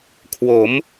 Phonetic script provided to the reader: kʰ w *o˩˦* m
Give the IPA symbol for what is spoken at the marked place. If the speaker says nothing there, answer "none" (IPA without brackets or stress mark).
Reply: o˩˦